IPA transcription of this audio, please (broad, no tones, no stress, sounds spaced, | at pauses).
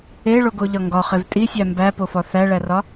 e ɭ o ɡ o ʎ ɒ ŋ ɡ ɒ χ e v tʼ i sʲ æ m b æ p o f ɒ θ æ ɭ æ r ɒ